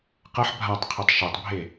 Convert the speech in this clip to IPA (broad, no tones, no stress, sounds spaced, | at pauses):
q ɐ ħ bʱ a tˤ qʰ i tˤ ʃ o tˤ bʱ e